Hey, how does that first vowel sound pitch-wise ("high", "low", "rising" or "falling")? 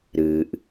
low